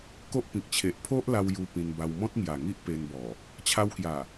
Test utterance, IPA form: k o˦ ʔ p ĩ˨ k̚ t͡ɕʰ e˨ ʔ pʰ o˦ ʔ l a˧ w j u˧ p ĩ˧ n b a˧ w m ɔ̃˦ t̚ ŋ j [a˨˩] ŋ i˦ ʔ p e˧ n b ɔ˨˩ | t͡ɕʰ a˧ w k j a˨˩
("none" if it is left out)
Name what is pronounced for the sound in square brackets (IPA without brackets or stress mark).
a˨˩